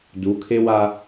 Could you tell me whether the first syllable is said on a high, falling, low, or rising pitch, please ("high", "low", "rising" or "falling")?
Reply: rising